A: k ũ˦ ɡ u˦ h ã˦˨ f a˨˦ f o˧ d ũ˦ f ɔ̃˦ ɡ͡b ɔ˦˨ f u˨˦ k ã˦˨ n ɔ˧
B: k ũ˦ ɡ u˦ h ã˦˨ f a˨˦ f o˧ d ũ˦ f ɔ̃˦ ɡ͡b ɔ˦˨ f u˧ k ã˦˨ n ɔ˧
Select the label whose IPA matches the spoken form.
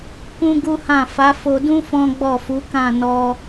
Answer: A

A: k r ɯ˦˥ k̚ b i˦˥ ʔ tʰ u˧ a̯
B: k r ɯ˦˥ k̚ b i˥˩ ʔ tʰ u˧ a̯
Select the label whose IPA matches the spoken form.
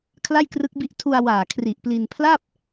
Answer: A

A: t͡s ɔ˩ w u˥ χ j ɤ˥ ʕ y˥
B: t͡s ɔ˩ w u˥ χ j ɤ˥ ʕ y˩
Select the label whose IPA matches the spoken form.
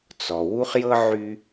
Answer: A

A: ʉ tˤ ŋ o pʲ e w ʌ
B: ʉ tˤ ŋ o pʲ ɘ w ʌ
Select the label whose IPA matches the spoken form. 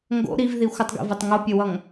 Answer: B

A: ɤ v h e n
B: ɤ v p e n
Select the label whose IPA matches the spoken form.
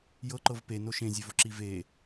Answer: B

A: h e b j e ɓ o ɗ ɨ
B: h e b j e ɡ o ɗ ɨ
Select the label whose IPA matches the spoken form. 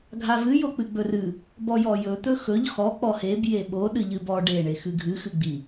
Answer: A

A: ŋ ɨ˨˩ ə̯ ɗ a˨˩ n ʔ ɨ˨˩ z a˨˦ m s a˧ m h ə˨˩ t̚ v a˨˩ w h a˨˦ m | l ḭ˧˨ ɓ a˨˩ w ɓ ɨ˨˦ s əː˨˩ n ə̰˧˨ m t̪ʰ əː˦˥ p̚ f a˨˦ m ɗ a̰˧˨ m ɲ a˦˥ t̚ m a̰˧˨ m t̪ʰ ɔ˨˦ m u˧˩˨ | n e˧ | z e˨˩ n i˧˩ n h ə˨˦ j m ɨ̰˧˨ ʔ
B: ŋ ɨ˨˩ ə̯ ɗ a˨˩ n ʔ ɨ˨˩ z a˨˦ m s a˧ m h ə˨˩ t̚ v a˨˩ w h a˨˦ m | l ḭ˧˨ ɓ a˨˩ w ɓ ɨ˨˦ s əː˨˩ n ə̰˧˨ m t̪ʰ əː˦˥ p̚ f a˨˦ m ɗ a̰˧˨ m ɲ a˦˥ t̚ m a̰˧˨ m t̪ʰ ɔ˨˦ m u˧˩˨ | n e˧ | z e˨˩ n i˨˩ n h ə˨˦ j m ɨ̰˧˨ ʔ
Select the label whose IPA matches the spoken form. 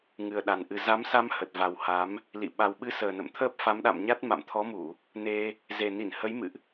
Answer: A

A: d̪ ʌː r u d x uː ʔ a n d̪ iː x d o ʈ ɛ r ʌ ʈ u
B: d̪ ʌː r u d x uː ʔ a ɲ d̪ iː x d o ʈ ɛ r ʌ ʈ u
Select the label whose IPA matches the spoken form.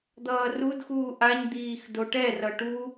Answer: B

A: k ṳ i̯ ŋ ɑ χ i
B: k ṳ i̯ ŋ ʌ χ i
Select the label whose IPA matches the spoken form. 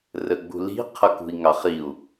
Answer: A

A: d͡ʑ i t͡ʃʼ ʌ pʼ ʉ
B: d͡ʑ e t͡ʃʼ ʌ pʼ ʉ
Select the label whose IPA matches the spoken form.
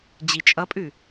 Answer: A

